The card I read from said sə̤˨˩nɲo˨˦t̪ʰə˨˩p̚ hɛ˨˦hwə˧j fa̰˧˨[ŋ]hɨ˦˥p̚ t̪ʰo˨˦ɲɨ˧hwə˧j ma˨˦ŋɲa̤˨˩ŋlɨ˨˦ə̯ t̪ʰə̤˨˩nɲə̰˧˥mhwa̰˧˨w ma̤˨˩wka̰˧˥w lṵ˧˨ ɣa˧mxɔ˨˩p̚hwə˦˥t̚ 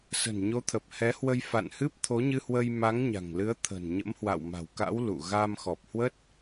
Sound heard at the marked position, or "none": n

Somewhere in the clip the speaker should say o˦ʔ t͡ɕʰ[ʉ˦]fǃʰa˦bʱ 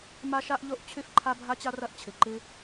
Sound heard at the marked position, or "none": ʉ˦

